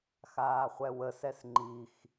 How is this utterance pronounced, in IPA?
x aː χʷ ɛ w ə s ɛ s ŋ͡ǃ i x

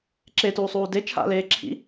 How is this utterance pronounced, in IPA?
ǁ e t uː sˤ uː d e t͡ʃʰ a̰ l eː ǁʰ ḭ

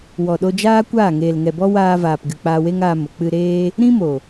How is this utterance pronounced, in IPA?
w ɔ˨ ɗ o˧ d͡ʒ aː˦ kʷ aː˦˨ ŋ eː˨ l ŋ ɛ˨ b ɔ˦ w aː˧ v aː˨ p ɡ ɨ˨ k͡p aː˧ w e˦ ŋ aː˧ m o˨ k͡p ɨ˧ ɾ eː˦ | ɾ ĩ˦ m o˨

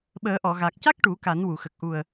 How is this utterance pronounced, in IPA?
ɓ əː˨˩˦ ʔ ɔ˨˩˨ ɣ a˨˩ k̚ c a˦˥ k̚ ʈ u˨˩˦ k a˨˩˦ n w u˨˩˨ x ə˨˩ k̚ ʔ u˨˩ ə̯

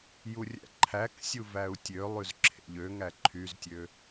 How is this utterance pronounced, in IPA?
j u rʲ æ̰ ǃʰ æ k sʲ u v æ u̯ tʲ ø lˠ y z ǁʰ ḛ ʎ ø ŋ æ ǃʰ y z tʲ ø

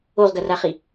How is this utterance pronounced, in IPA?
o ʁ ɡ ɐ r a χ i

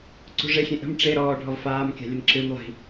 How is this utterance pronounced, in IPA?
ǀ ṳ ʐ e xʲ ẽ ʔ ə̤ m ʈ͡ʂ e ɾ ɔː ɖʱ ɔ v f aː m kʲ a̤ lʲ ə n ǁ ɨ m lˠ i̤

